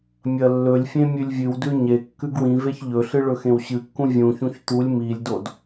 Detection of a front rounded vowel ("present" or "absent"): absent